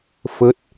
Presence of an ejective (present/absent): absent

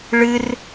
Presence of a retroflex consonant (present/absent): present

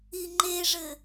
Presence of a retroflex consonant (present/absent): present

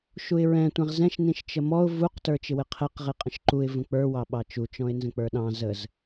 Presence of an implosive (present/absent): present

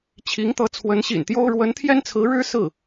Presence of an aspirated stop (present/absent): present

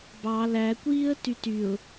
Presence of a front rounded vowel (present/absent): present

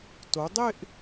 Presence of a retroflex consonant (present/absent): absent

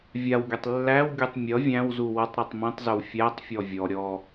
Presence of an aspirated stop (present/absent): absent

